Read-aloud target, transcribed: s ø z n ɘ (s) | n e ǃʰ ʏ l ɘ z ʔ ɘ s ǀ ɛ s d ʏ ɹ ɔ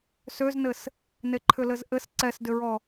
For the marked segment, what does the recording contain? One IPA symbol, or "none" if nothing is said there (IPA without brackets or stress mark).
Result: s